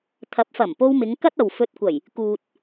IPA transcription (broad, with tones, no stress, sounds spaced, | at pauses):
t̪ʰ ɐ˨˥ p̚ f ɐ˨˩ m p o˧ w m ɪ˨˧ ŋ k ɐ˥ t̚ ɐ˨ w f ɵ˧ t̚ kʷ ɐ˨˩ j | k uː˨ t̚